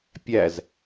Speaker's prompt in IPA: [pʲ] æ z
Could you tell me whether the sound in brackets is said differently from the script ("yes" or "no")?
no